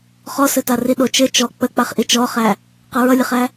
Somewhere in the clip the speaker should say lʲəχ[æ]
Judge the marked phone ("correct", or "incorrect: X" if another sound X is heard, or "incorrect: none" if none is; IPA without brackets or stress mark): correct